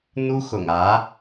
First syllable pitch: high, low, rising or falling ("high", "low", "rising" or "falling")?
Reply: high